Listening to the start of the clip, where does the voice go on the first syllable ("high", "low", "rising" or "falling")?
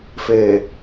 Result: low